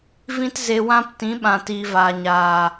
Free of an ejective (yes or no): yes